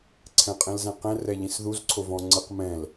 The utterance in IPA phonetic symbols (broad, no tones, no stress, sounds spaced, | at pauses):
ǀʰ ɛ̃ qʼ ẽ l z ɛ̃ q ɛ̃ r ɛ ʎ ĩ s ð u z ǀʰ o v ɔ̃ ŋ͡ǀ ɯ q m ɛ̃ l